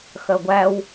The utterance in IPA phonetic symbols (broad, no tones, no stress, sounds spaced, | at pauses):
x ɜ ɡʷ æ w